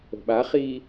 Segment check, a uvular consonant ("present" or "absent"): present